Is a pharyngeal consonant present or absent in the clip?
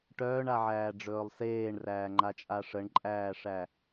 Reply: present